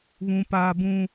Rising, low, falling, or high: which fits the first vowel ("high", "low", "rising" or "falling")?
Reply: high